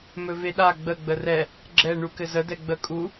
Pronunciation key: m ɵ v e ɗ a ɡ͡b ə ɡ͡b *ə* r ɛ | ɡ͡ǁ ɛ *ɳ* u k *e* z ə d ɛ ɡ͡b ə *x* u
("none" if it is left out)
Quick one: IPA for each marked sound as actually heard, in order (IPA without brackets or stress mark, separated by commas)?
ə, ɳ, ɘ, kʼ